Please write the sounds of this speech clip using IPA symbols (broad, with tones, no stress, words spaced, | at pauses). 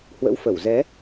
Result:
hwə̰˧˥wfə˧˩w zɛ˨˦